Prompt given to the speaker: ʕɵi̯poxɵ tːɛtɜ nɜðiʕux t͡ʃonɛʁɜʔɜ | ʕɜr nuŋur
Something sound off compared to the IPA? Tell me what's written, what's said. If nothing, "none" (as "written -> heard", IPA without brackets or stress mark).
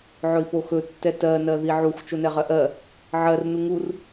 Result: none